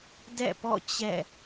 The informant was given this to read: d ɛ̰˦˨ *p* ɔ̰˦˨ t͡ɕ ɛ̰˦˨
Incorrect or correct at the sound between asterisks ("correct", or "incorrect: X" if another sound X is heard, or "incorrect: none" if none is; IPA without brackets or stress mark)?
correct